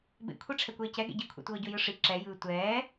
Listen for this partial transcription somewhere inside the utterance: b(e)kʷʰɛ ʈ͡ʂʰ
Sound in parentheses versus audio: incorrect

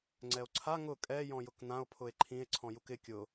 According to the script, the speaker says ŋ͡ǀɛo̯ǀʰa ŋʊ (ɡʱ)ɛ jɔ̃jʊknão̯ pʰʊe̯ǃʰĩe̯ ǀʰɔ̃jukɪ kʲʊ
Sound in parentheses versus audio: incorrect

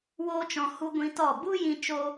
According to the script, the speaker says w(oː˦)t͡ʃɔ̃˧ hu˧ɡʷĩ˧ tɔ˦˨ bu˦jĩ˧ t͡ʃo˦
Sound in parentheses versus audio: correct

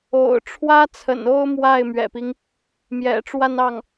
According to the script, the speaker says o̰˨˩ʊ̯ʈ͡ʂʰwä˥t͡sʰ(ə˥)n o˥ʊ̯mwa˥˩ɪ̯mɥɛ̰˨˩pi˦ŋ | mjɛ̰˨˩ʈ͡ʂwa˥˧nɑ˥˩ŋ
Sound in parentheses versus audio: incorrect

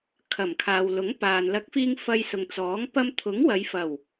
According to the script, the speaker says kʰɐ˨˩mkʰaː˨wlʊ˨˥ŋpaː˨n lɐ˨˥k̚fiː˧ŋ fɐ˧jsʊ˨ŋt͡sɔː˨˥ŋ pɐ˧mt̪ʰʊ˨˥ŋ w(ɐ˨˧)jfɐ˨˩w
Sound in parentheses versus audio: correct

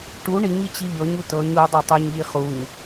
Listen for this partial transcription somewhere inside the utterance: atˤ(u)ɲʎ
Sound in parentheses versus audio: correct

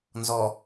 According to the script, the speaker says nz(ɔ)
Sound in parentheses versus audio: correct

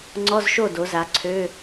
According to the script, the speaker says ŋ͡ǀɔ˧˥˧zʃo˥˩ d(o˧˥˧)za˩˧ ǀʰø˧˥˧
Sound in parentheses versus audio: incorrect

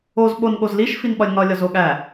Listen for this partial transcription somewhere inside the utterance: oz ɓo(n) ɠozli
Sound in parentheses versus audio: correct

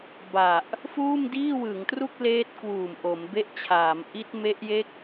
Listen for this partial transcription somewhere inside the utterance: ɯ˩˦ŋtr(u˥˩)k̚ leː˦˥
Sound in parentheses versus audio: correct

